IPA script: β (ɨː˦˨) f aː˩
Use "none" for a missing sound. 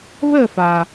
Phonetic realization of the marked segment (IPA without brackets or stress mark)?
əː˦˨